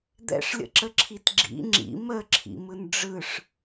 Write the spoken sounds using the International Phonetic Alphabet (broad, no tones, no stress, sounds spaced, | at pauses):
d̪ ɛ̰ ʂ lʲ ə̰ ǁ ə ǁʰ i t ɡ͡ǁ ḭ ŋ͡ǁ ḭ m ə ǁʰ ḭ m ɯ n ɖ͡ʐ ɯ ʂ